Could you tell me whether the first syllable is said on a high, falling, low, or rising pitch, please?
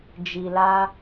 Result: low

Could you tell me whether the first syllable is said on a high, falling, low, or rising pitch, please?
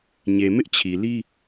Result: low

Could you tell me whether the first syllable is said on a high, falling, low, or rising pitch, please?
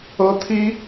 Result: high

